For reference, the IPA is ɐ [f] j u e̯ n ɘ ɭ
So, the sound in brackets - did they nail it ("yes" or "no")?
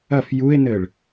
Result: yes